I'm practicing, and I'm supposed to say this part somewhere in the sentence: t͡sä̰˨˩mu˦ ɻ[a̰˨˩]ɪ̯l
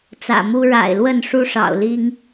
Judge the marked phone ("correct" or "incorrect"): correct